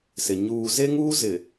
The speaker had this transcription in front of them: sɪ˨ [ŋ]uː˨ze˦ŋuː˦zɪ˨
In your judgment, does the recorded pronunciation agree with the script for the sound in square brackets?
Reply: no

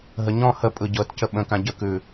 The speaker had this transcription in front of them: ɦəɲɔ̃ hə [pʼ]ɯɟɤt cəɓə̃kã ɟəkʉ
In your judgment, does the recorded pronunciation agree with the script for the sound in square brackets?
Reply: yes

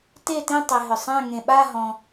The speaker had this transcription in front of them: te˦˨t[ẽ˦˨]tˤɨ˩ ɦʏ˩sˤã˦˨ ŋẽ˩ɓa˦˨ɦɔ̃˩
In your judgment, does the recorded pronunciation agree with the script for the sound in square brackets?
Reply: no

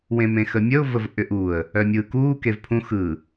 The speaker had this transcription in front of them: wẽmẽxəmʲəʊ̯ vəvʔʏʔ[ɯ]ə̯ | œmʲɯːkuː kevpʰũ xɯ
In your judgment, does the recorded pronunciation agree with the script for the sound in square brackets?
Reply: no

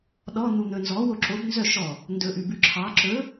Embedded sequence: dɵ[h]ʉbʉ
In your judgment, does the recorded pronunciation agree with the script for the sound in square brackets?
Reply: no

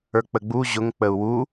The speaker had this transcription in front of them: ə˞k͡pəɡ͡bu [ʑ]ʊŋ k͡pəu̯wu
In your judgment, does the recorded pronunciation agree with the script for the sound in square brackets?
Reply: yes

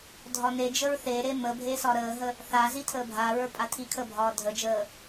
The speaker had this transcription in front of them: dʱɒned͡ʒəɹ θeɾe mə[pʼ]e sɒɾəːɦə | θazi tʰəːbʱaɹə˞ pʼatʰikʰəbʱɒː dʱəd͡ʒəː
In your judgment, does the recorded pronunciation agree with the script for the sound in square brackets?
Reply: no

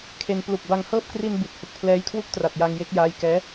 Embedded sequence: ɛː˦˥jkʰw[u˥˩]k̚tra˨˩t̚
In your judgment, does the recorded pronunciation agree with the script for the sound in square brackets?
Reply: yes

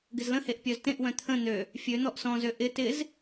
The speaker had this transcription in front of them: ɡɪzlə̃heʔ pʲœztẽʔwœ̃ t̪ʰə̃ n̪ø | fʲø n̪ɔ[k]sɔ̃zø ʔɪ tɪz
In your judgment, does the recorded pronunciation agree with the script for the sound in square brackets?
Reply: no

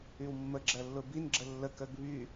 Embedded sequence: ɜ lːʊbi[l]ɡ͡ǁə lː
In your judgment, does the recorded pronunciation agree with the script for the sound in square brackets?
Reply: no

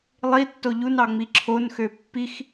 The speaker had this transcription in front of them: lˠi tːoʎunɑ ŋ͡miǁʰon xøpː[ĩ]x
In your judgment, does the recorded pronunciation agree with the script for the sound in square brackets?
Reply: no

